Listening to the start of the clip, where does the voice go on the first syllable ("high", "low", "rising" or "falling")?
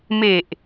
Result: low